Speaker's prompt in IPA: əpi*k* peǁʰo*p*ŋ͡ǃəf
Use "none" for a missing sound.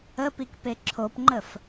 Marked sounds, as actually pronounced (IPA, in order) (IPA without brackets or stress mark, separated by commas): k, p